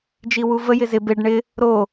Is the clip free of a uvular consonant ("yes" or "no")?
yes